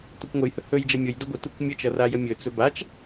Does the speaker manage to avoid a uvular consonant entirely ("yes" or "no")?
yes